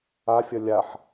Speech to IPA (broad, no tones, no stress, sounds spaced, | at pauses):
a fʲ ʌ lʲ a ħ